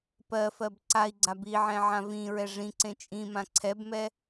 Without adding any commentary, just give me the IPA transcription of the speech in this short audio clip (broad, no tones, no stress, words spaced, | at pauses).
pɜ fɜbǀai̯ɡ͡ǀa biʕɛ̃ ʕãvĩɹɛ ʐĩǀẽ t͡ʃʼĩmã ǀʰɛbmɛ